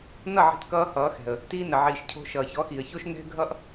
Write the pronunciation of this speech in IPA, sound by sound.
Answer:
n ʌ˦˨ ʕ i̤˧ t k ʌː˧ h ʌː˨˦ x ɛ̤˨ ə̯ | t iː˧ n ə˨ ʕ iː˨ ʃ cʰ o̤˧ ʃ ʌː˨ ç ɔ˨˦ x iː˨ ə̯ ç o˦ ʃ n ɛ̤˦ ɡʱ ʌ˦ ʔ

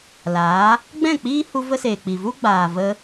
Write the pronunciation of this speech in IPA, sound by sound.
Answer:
l aː˨˦ | ɡ͡b ɛ̃˦˨ k͡p iː˦ h u˧ v ə˦ s eː˨ k͡p i˨ v u˦ ɡ͡b aː˨ v ə˧

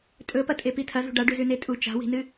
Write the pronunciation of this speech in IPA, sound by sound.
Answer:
tʼ ɵ p ɐ tʼ e p i tʰ ɐ z ṳ ɖ a ɖ ʉ z ʉ n e tʼ u t͡ʃ a̤ w i̤ n ɨ

